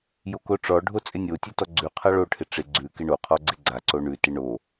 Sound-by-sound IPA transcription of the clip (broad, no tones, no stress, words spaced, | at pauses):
jokoʈ͡ʂɔɖʱo t͡sʼɪnʲotʲʉ tɔɡ͡ǀʉqʰa ɭoʈʰɪ ʈ͡ʂɪ ɡ͡ǀʉ kɪɳoqʰɔ ɡ͡ǀɪɡ͡ǀaǀo ɳʉtɪ ɳo